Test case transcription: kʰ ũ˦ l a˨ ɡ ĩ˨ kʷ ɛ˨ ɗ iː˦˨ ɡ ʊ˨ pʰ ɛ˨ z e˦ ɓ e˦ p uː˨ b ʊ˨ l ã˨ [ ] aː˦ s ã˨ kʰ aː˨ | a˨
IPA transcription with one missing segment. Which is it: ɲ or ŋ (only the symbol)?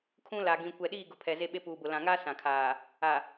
ŋ